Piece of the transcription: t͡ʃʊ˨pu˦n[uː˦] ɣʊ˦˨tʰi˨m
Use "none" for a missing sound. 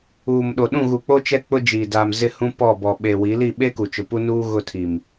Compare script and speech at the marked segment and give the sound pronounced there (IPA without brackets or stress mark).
uː˦